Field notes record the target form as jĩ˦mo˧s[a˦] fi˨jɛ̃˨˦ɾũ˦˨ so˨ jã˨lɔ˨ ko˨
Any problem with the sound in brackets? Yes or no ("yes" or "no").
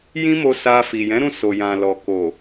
yes